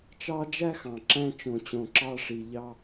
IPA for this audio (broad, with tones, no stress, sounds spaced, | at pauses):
t͡ʃ ɑ˧ d͡ʒ æ˥ x ɑ̃˩ ǁ æ̃˧ t͡ʃ õ˩ t͡ɕ õ˩ ǁ ɑ˧ ʂ i˩ ʎ ɑ˧